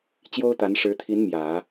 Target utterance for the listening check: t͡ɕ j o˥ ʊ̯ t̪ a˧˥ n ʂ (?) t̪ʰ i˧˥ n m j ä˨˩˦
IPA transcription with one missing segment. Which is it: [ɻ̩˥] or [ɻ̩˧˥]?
ɻ̩˧˥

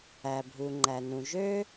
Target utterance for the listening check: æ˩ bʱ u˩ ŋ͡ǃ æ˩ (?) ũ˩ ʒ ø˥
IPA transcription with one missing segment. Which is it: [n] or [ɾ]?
n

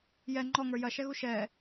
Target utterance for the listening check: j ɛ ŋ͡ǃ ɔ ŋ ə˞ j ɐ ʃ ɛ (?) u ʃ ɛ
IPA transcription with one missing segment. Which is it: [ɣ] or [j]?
ɣ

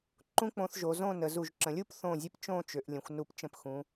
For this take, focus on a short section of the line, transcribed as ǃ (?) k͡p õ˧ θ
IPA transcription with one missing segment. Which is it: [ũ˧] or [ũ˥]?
ũ˥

